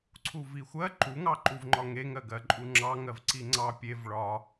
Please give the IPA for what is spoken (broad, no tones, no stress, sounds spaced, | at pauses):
ǀʰ u v i xʷ ɜ ǃ u ŋ ɑ ǃ u v ŋ͡ǃ ɒ ŋ e ŋ ɜ ɡ ɜ ǃʼ u ŋ͡ǁ ɑ ŋ ɜ v ǀ i ŋ͡ǀ ɑ pʲ e v ɭ ɒ